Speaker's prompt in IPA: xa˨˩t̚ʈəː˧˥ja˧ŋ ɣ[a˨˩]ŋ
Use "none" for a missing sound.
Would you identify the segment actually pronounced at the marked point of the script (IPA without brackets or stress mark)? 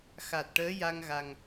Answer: a˨˩